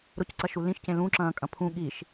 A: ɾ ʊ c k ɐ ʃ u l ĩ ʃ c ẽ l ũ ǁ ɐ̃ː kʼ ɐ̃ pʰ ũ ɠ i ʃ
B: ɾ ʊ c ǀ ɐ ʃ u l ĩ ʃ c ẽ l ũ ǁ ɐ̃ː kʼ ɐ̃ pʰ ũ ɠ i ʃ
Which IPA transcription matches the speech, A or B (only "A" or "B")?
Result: B